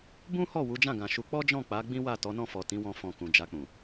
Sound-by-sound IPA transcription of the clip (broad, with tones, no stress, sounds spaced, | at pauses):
b ũ˦ h ɔ˦˨ w u˨˦ d͡ʒ ã˦˨ ɡ ã˨ ʃ u˧ k͡p ɔ˦ d͡ʒ ɔ̃˦˨ k͡p a˨˦ ɡ͡b ĩ˦ w a˦˨ t ɔ˨˦ n ɔ̃˦˨ f ɔ˨ t ĩ˨˦ w ɔ̃˧ f ɔ̃˧ k ũ˨ d͡ʒ a˧ k͡p ũ˨